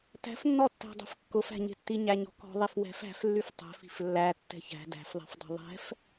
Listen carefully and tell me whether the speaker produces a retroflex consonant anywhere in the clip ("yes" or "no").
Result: no